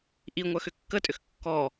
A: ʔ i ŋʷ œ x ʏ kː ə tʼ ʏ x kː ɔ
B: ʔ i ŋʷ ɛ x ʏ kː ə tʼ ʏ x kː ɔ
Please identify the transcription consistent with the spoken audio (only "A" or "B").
A